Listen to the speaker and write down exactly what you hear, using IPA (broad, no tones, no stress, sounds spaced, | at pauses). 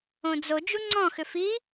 õ d͡z o d͡ʒ u ŋ͡ǀ ɔ̃ x ʏ f i